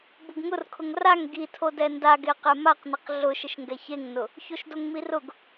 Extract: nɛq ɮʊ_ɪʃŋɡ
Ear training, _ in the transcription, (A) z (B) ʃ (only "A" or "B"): B